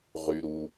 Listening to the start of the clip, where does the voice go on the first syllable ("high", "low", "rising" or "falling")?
low